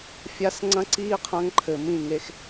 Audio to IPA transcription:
fʲ a˦ s ŋ͡ǀ ɐ̃˦ ǀ iː˦ qʰ ɐ̃˦ ŋ ǃʰ ɘ˨ m ĩ˦˨ ŋ e˨ x

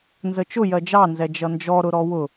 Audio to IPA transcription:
n z ə t͡ʃ ʊ j ɜ d͡ʒ ɑ n z ɛ d͡ʒ ʌ n d͡ʒ ɔ ɾ ʊ ɾ ɔ w ʊ

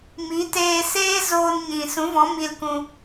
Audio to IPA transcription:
m i˨˦ t eː˧ s eː˦ z oː˧ n ɲ ĩ˨ s ũ˨˦ v ɔ̃˨˦ m i˧ l k ũ˧

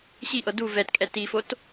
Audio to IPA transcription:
ɕ i ʔ ɤ d u v ɛ t kʼ ɛ t i f o t

